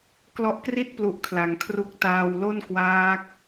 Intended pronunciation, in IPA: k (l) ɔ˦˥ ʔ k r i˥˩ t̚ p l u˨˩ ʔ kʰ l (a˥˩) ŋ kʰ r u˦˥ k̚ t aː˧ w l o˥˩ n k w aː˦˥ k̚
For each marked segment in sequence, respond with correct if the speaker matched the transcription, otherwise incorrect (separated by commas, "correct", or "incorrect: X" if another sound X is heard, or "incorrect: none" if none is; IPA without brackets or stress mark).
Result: correct, incorrect: a˩˦